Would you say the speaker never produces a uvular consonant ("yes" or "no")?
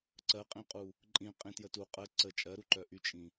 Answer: no